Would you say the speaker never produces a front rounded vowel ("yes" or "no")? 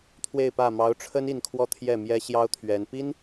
yes